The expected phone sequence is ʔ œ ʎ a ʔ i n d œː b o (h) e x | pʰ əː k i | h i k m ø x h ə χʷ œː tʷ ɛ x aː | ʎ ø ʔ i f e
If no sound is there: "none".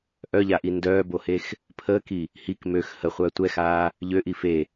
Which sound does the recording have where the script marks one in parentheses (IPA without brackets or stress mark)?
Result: h